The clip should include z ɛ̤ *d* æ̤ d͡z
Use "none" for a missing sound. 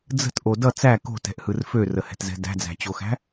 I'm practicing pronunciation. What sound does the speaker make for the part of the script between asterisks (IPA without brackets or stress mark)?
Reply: d